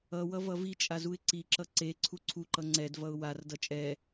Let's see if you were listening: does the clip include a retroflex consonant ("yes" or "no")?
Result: no